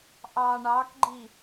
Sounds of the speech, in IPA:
ʔɑ ɳɑkɡ͡ǃi

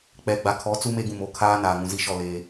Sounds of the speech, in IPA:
k͡pɛ˨ɡ͡ba˨kʰɔ˨˦t͡su˦ me˦ɡũ˨m o˨kʰaː˦ naː˨ŋũ˨zi˦ʃɔ˦˨ leː˦

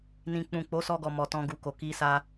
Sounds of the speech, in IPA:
nĩ˦k͡pũ˦˨ k͡po˨˦sɔ˧ ɡɔ˨mɔ˨ tɔ̃˧ɡu˨ko˨ ki˧sa˧

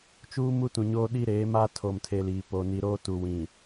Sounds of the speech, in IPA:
t͡ʃuː˦mu˦tũ˨ɲoː˦ ɗi˦ɾeː˨˦maː˦ tʰo˨mtʰe˨ liː˨po˨ ni˨ɾoː˦tu˨wĩ˨

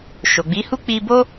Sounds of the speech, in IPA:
ʃo˨ɡ͡bi˨˦hu˦ k͡pi˧bo˦

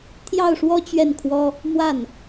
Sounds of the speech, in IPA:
t̪ʰjɑ˥˩ʊ̯ʂwɔ˥ t͡ɕɥɛ˥˩nkʰwɔ˥ | mwa˥˩n

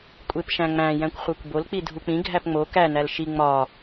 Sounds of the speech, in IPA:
kʷʼepʃæ̃ŋ͡mæ̃ jæ̃kʷχʷækʷbol k͡pidʱuk͡pĩ ɡʱæpŋ͡mo kæ nælʃi ŋ͡mɒ

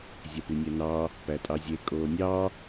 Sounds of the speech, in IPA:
zʲæpynʲænɑː | pætʼɑzʲe kʼoːnʲɑː

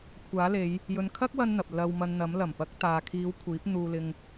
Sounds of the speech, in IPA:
kʷʰaː˨˥le˨˧j | jɵ˨nkʰɐ˥k̚ wɐ˥nn̪ɐ˨p̚ lɐ˧wmɐ˧nn̪ɐ˨˥m lɐ˨˩mpɐ˨˥k̚t̪aː˨kʰiː˨˧w kʷʰiː˨˥p̚n̪uː˧lɪ˧ŋ

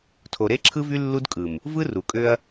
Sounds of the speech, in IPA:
tʰo˨ɾe˦ǁʰɯ˦vy˦ lːu˦dkʼɯ˨m | vɯ˦ru˨kʼø˦ɐ̯

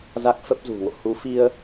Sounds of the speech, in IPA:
za˦˥k̚fə˦˥p̚zṳ˨˩ŋo̰˧˨ hu˨˦fi˧ə̯

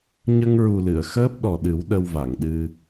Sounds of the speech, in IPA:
ɲə˧ŋɹu˨˩lɨ˨˩˨ə̯ xəː˦˥p̚ɗɔ˨˩ɗɨ˨˩˦w ɗə˧wva˨˩˨ŋɗɨ˧

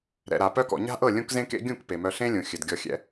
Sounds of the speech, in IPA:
ɾɛ̰˨ɾa˨ pœ˧kɔ̰˨ ɲa̤˦ʔɤ˦˨ lʲũ˦kzẽ˦kḛ˦ ɡʲũ˦˨k pe˨mœ˧ɬẽ˦lʲũ˨ xʲɘ˨dɡʲɔ˧xʲɛ̰˦

